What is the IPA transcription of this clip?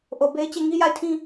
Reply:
ʔ o˨ b e˦ ɪ̯ t͡ɕ e˦˨ ŋ i˦ j a˦˨ ɪ̯ tʰ ĩ˦

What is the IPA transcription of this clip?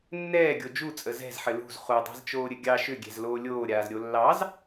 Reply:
nː ɛː ɡʲ o d͡ʒ u t͡sʼ ə z ɛ̤ z ħ ɘ l ṳ z χ u dˤ a̤ z t͡ʃ oː ɾʲ ɘ ɡʲ ɑ ʃ ʏ ɡʲ ɛ̤ z l oː lʲ oː ɾʲ aː z ɾʲ o lː ɑ z

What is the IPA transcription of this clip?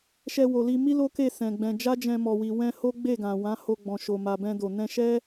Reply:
ʃ ɛ˧ w o˨ l i˧ m i˦ l o˦ k e˦˨ s ɛ̃˨ ɡ͡b ɛ̃˧ d͡ʒ a˦ d͡ʒ ɛ̃˧ m ɔ˨ w i˨ w ɛ̃˧ h o˦ ɡ͡b e˦˨ ɡ ã˨ w ã˨˦ h o˧ ɡ͡b ɔ̃˨ ʃ o˨ m a˨ b ɛ̃˧ d o˨ n ɛ̃˧ ʃ ɛ˦

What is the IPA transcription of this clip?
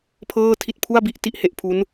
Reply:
pʰ ɤː˥˩ tʰ i˥˩ t̚ pʰ u˥˩ a̯ b i˦˥ ʔ t i˥˩ ʔ h e˥˩ ʔ pʰ u˦˥ n

